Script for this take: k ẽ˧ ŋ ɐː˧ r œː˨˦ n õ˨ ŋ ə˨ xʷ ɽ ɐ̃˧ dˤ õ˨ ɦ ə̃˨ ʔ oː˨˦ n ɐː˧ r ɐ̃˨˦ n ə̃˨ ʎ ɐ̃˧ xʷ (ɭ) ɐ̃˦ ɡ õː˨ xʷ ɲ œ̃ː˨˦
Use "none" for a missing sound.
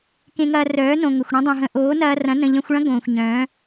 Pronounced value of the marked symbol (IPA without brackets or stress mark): ɭ